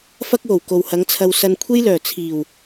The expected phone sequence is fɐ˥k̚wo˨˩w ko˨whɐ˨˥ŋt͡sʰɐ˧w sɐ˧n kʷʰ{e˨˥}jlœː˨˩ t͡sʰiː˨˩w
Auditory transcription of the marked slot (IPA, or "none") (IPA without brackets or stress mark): e˥